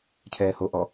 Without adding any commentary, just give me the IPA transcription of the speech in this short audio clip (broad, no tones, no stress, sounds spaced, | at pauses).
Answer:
cʰ ɛː h o ʔ ɔ